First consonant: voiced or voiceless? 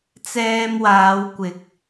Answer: voiceless